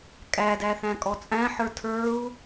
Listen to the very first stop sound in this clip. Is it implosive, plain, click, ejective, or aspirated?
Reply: ejective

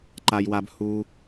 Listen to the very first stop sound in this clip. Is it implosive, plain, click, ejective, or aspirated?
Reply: click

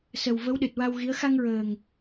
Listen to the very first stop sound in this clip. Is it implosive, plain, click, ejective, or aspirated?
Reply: implosive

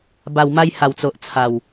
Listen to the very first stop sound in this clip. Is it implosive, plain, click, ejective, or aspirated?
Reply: plain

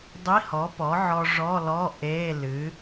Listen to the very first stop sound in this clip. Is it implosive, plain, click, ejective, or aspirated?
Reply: plain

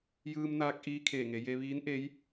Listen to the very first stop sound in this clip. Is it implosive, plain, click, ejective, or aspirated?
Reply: plain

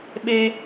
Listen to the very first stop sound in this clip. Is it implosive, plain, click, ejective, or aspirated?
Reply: implosive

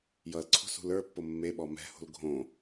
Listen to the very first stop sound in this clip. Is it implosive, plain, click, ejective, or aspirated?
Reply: click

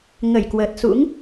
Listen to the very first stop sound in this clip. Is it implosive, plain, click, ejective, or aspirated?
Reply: plain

